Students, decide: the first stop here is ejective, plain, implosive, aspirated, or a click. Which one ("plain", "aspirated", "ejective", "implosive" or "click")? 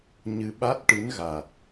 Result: implosive